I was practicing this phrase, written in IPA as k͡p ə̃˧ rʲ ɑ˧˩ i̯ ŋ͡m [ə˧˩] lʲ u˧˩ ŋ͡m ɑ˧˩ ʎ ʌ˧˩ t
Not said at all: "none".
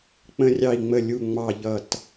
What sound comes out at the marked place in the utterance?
ə˧˩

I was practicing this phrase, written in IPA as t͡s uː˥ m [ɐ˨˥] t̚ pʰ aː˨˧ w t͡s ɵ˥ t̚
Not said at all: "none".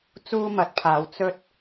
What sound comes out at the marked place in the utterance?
ɐ˨˥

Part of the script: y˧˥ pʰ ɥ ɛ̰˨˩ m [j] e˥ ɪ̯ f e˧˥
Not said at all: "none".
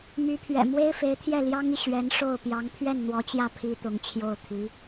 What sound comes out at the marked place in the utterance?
w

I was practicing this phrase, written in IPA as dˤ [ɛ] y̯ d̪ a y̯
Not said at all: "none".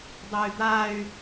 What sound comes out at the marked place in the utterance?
ɛ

